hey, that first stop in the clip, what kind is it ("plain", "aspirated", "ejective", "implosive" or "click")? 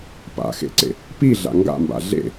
plain